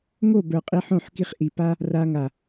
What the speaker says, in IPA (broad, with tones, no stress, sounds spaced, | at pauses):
ŋ o˦˨ b ə˞˨ qʼ i˧ ħ õ˦˨ ħ k i˧ χ ʔ i˨ p a˦ | r a˧ ŋ a˨